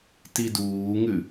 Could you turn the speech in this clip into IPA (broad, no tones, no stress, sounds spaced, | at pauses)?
t i d uː ŋ ʉ